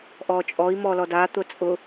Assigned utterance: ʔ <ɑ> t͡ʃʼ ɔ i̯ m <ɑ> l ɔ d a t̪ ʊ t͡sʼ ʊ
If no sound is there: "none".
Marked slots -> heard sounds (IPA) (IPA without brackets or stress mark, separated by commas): ɔ, ɔ